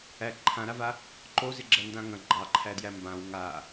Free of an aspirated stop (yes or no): no